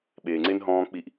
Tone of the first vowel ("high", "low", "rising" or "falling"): low